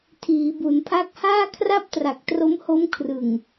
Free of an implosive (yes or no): yes